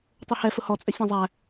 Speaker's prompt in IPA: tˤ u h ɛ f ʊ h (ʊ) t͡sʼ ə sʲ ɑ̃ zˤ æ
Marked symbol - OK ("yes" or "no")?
no